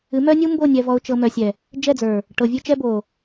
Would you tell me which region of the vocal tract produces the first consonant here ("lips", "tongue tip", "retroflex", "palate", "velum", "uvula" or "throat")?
lips